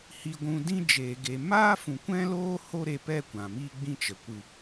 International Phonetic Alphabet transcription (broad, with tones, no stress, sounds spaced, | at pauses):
h i˨ ɡʷ ũ˨ d ĩ˦ d͡ʒ eː˨ ɡ e˨ m aː˦ f ũ˨ kʷ ɛ̃˦ l oː˦ h o˦ ɾ e˧ p ɛ˦˨ kʷ ã˨ m iː˦ ɡ͡b ĩ˦ t͡ʃ ə˨ kʷ ɨ˨